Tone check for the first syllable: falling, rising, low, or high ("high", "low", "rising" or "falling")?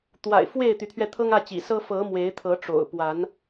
low